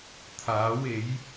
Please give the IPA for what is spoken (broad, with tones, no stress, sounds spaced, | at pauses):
t̪ʰ aː˨˥ w e˨˥ j